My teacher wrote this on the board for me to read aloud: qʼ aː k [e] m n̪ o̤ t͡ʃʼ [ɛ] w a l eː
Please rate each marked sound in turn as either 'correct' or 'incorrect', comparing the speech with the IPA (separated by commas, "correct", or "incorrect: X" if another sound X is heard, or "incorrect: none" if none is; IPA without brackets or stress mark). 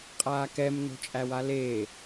incorrect: ɛ, incorrect: æ